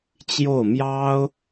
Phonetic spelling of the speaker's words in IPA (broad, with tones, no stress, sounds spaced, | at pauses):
t͡ɕ j o˥˩ ʊ̯ m j ɑ˥ ʊ̯